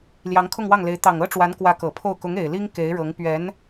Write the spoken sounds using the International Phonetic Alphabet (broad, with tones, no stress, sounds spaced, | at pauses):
l j ɑ˧˥ ŋ kʰ ʊ˥˧ ŋ w ɑ˥˩ ŋ l e˧˥ ɪ̯ t̪ ɑ˨˩ ŋ ɤ˥ ʈ͡ʂ w a˧˥ n k w ä˧˥ k ɤ˨˩ pʰ o˥˩ ʊ̯ k ʊ˧˥ ŋ e˨˩ ɪ̯ l i˥ ŋ k e˧˥ ɪ̯ ɻ ɤ˧˥ ŋ p ɥ ɛ˧˥ n